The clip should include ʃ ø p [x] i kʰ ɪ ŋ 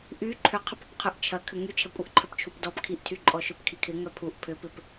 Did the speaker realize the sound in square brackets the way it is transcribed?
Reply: no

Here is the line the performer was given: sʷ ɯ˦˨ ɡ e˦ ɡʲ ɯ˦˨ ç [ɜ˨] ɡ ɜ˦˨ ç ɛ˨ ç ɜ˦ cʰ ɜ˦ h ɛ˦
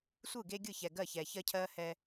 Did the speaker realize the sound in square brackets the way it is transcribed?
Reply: no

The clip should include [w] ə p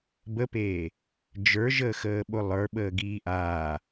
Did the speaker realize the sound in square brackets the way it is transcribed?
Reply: no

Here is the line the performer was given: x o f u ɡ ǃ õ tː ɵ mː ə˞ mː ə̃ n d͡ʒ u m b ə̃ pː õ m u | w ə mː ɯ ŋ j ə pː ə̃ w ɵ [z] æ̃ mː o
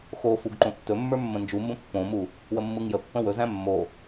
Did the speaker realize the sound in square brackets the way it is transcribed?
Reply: yes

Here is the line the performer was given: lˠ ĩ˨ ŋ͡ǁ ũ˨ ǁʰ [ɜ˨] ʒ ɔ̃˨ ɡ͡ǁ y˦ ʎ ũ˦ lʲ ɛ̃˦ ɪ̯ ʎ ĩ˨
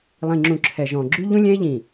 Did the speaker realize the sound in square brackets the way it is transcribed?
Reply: no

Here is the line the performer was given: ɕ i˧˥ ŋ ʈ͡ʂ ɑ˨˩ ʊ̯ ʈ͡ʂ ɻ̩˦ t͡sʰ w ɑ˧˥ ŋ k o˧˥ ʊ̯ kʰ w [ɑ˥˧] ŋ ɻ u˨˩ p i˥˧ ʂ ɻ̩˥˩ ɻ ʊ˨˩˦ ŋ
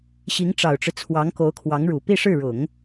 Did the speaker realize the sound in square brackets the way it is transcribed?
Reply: no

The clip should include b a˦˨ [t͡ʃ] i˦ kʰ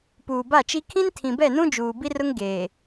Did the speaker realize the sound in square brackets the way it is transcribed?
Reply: yes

